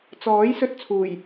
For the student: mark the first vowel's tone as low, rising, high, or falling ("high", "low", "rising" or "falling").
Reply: rising